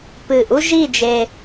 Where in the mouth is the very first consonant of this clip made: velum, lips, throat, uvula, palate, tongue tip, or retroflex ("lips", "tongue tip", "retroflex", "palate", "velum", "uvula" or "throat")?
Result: lips